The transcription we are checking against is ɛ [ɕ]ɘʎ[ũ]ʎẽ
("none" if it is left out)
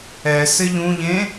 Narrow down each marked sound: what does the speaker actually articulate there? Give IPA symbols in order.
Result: s, ũ

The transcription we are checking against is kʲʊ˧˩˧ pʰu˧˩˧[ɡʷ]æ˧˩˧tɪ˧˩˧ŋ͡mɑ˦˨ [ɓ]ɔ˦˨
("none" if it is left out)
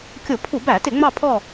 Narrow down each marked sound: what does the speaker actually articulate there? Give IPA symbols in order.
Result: b, pʰ

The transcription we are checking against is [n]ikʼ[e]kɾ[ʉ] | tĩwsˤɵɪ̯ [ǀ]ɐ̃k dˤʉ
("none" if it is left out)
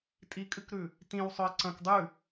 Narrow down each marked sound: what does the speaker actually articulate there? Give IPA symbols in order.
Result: tʼ, ɨ, ʉ, ǀ

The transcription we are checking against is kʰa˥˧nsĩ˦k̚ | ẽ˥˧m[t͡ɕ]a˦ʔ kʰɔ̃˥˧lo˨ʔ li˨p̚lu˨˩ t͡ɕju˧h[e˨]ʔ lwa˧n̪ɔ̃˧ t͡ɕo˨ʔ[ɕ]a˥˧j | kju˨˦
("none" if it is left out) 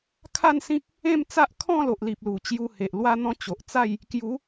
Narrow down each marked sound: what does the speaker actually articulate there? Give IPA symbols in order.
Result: t͡s, e˨, t͡s

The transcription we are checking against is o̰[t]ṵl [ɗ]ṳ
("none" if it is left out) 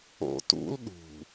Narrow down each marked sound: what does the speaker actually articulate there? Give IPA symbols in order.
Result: t, ɗ

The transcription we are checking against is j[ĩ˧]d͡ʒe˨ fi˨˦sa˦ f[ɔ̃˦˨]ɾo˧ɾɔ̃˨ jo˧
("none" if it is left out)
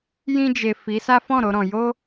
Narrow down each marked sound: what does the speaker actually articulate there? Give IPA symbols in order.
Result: ĩ˧, ɔ̃˦˨

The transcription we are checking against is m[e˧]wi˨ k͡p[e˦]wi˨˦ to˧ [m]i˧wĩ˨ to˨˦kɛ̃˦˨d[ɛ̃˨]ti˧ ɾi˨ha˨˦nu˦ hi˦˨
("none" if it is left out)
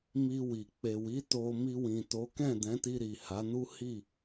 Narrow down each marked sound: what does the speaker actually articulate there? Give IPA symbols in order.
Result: i˧, e˨, m, ɛ̃˨˦

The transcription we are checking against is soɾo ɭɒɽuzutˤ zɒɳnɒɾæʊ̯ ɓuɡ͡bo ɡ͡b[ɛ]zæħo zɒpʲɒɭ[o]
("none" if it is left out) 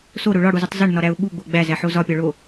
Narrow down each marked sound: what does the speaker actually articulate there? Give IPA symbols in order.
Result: æ, o

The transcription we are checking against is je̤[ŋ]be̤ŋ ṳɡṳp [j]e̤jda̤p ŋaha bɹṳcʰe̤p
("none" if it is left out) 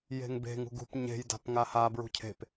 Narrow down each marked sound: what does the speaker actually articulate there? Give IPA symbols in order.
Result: ŋ, ɲ

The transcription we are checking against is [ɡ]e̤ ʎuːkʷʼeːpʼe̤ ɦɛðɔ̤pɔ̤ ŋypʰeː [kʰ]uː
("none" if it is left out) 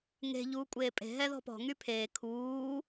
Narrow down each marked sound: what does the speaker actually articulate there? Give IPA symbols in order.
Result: ŋ, kʰ

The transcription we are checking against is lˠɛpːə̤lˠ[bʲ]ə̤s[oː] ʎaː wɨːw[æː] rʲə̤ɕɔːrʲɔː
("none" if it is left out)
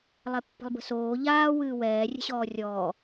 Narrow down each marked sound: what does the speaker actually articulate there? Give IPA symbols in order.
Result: b, oː, ɛː

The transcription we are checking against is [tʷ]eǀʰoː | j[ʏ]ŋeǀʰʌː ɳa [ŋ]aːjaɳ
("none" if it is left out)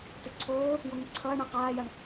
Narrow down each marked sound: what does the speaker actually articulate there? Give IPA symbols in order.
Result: t, u, q

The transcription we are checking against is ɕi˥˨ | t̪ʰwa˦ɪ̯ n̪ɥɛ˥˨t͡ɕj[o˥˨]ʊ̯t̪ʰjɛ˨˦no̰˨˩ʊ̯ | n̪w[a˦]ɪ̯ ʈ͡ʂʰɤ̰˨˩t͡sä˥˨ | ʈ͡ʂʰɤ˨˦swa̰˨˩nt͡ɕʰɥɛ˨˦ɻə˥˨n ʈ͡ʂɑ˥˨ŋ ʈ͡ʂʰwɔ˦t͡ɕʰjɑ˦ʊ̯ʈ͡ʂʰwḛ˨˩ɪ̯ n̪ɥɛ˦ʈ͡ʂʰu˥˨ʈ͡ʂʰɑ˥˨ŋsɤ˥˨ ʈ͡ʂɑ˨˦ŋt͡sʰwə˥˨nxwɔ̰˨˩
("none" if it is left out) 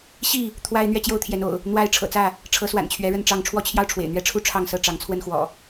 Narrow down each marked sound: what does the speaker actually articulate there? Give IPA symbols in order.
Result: o˥˨, a˦

